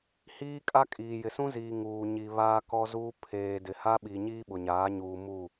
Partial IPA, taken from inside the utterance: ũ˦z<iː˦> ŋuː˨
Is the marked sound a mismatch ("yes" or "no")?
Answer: yes